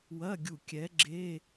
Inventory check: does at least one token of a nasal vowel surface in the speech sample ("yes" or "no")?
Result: no